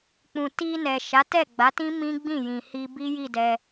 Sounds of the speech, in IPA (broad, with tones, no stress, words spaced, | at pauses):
k͡pũ˨ti˧nɛ˨ ʃa˨˦ tɛ˦˨ɡ͡ba˨˦tĩ˦ mĩ˦ɡ͡bĩ˦˨jĩ˨ hi˧bi˦ji˦˨ dɛ˧